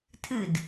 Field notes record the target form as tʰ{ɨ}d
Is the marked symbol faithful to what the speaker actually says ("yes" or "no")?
yes